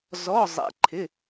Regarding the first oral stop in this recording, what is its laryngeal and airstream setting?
click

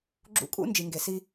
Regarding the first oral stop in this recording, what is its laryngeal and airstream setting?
click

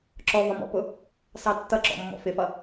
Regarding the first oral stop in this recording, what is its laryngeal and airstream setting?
click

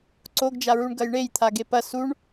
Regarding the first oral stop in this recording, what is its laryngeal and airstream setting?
click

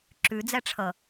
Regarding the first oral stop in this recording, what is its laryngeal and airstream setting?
click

